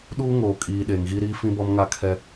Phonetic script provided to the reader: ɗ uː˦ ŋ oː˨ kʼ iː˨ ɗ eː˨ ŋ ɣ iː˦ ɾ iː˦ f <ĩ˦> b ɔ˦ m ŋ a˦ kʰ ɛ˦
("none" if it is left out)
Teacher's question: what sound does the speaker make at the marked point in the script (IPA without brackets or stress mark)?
ĩ˦